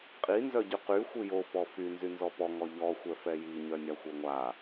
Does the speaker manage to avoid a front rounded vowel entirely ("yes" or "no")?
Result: no